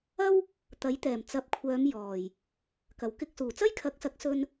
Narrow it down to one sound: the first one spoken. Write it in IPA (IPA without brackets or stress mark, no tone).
ɐ